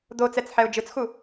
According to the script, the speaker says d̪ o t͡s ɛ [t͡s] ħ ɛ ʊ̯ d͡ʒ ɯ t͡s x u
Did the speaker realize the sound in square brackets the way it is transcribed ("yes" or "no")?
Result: yes